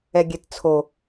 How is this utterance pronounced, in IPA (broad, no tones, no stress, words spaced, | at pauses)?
ɛɡʲɛtt͡sʰo